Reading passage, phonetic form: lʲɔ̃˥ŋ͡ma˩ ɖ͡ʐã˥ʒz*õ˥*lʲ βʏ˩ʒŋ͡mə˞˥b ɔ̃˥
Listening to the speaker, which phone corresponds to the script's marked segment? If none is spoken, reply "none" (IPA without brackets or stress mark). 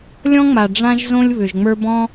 õ˥